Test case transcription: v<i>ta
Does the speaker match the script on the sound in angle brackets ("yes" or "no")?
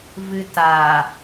no